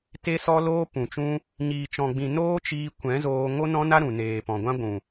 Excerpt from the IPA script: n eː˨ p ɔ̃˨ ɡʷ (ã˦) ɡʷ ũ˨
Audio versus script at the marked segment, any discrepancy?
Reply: no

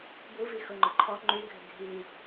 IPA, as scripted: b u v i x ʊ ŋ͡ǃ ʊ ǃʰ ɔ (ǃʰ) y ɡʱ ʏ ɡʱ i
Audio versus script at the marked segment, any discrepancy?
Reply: yes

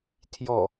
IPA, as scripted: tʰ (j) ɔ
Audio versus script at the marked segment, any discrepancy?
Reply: no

